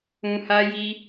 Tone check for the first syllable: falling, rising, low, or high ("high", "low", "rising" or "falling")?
low